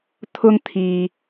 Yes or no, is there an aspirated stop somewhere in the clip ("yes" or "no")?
yes